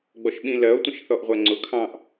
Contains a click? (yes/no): yes